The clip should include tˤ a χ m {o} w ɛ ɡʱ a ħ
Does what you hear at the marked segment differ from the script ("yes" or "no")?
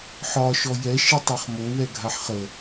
no